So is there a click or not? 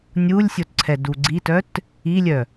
yes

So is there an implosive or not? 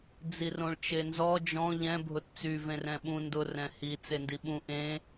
yes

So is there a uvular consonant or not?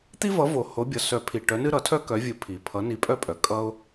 no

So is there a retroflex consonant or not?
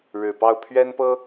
yes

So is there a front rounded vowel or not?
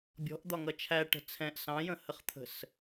no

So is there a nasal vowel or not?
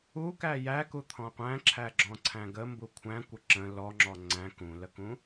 yes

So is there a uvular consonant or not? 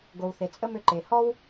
no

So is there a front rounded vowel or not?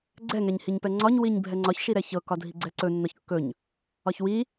no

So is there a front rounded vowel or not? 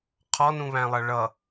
no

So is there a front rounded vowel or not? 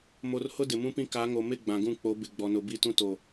no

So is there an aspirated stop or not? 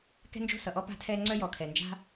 yes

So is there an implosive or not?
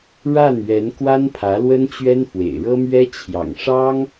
no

